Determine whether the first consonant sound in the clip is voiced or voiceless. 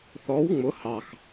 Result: voiceless